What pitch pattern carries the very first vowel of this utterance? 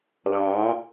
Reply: rising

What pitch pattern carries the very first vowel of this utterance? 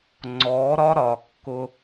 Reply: rising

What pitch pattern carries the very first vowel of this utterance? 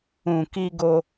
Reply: low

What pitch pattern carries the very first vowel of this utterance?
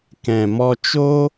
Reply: low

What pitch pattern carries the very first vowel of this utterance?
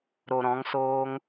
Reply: low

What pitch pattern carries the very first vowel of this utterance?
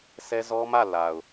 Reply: high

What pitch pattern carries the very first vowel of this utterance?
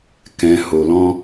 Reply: low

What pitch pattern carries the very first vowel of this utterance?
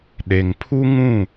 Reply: low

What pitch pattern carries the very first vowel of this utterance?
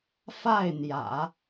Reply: falling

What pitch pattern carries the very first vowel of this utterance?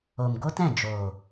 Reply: low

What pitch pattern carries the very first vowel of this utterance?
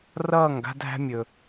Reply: falling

